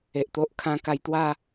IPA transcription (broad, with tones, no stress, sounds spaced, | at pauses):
e˨ ʔ t̪ o˦ ʔ kʰ ã˧ k a˧ j t̪ w a˥˧